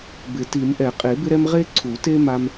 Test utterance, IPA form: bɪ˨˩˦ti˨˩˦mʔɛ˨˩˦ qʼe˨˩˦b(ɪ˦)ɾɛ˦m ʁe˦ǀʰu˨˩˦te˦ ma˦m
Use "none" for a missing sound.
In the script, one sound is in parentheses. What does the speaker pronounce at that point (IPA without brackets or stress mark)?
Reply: ɪ˦